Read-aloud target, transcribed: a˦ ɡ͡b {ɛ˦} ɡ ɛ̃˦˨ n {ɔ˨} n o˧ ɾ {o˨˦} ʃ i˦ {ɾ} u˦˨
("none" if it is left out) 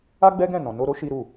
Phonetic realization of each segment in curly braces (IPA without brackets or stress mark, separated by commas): ɛ˦, ɔ̃˨, o˦, ɾ